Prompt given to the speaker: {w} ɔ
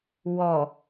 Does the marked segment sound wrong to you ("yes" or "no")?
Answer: no